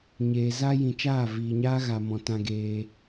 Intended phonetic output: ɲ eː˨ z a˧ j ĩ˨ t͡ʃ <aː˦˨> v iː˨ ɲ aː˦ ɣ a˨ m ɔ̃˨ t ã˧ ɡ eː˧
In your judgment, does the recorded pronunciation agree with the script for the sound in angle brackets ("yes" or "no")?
yes